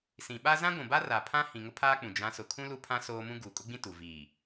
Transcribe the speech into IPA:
s ĩ˨ ɓ a˦ z ã˦ ɡʷ ũ˨ b a˦ r a˨ pʰ ã˦ h ĩ˨ ŋ ʊ˦ pʰ aː˦ k͡p ũ˨ d͡ʒ ã˨˦ s ʊ˨ kʰ ũ˦ l u˦ pʰ ã˦ s oː˦ m ũ˦ ɡ uː˨ kʼ ʊ˦ ɡ͡b ĩ˦ t u˨ v iː˨

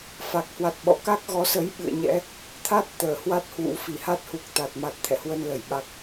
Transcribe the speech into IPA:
f a˨˩ k̚ h w a˨˩ t̚ ɓ ɔ̰˧˨ k a˦˥ k̚ ɣ ɔ˨˦ s ə˨˦ j ɓ ɨ̰˧˨ ə̯ ɲ ɛ̰˧˥ | t̪ʰ a˦˥ t̚ t̪ əː˧˩ h w a˦˥ t̚ h w ṵ˧˥ f i˧˩ h a˦˥ t̚ h u˨˩ k̚ t̪ a˨˩ t̚ m a˨˩ t̚ t̪ʰ ɛ̰˧˨ h w ə˧ n l ə˧˩ j ɓ a˦˥ k̚

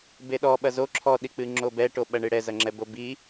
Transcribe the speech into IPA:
b e ɗ ɔ ɓ ɐ z o ǁʰ ɔ ɗ i k͡p ɨ ŋ͡ǁ o b ɛ ʈ o ɓ ɐ ɳ ɨ ɽ ɛ z ɐ ŋ͡ǁ ɛ b o b i

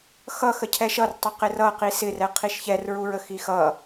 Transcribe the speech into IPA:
x ʌ x ə cʰ ɛ ʃ ʌ r tˤ ə q ɪ r ʌ q i s ɪ r ɛ qʰ i ʃ ç ɛ r ɹ u ɹ ə x i x ʌ

